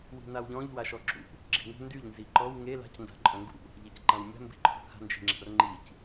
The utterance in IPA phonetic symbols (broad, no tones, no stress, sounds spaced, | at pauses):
w i̤ n a w ʎ ɔ̃ ʎ w a ʃ ɔ ǁ ṵ | ɡ͡ǁ i̤ ŋ ṳ n d y ʎ n z i ǃ ɔ w ŋ e l a̤ c n d a̤ ǃʼ œ̃ ŋ ɡ ṵ | ʎ e c ǃ ã w mʲ a̤ m b i̤ ǃʰ ṳ h a̤ n d͡ʒ i̤ ŋ͡ǁ a̤ r ŋ͡ǃ i c